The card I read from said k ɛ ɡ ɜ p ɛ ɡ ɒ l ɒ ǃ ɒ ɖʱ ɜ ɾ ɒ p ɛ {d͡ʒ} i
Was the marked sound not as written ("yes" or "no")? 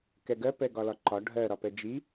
no